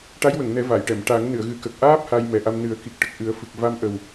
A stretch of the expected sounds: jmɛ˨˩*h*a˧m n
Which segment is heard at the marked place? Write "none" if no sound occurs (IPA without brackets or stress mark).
ʔ